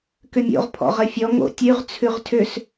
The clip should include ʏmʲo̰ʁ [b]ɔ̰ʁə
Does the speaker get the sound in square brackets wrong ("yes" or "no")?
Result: yes